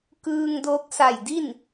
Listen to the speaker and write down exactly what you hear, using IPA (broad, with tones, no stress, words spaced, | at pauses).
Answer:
kɯː˧ŋdo˧˥k̚sa˧˩jdi˥˨n